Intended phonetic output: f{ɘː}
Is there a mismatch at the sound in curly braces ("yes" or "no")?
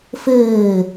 no